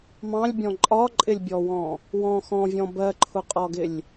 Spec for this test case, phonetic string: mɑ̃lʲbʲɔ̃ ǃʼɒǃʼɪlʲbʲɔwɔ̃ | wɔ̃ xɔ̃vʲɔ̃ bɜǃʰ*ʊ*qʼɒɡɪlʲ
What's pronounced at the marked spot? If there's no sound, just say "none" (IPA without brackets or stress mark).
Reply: ʊ